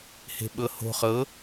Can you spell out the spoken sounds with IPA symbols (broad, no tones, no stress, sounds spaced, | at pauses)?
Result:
h e̤ ɓ ɤ h o̤ χ ɤ